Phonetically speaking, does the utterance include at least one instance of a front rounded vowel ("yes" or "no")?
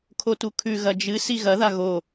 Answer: no